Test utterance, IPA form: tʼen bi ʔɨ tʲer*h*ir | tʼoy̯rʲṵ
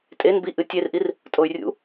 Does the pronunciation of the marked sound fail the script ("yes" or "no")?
yes